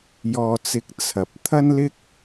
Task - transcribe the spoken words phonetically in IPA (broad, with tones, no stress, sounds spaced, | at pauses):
j ɔː˧ t͡s ɪ˧ k̚ t͡sʰ ɐ˨ p̚ t̪ʰ ɐ˥ n l ɪ˥ k̚